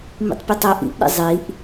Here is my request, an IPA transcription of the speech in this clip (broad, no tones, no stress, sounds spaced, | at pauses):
m ḭ tˤ pʲ ɛ tˤ ɛ ʔ ḭ ʔ ɗ ḭ zˤ i ʔ